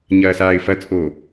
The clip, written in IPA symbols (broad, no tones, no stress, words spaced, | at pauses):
ɲɐːsaːɪ̯fɐt͡sʼoː